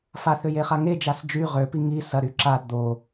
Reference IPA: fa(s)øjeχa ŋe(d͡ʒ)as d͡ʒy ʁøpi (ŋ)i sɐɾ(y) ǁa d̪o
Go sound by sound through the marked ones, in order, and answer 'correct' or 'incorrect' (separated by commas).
incorrect, correct, correct, correct